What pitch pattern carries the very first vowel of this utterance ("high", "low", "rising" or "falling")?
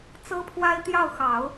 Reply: high